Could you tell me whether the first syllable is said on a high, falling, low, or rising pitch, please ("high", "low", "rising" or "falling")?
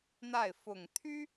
falling